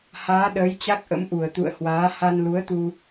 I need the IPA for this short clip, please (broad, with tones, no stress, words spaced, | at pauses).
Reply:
haː˨˦ɗəː˨˦jt͡ɕa˦˥k̚ʔə̰˧˥m ʔu˧˩ə̯t̪ṵ˧˨ə̯hwaː˨˦ ha˧nlu˨˦ə̯t̪u˧